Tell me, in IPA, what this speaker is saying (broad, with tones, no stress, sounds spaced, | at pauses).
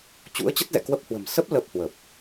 t͡ɕ ṵ˧˥ ə̯ t͡ɕ ə˦˥ t̚ z ɛ̰˧˨ k w ə˦˥ p̚ h w ə̤˨˩ m s ə˦˥ p̚ l ə˦˥ p̚ h w ə˨˩ p̚